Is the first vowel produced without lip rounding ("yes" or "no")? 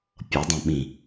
yes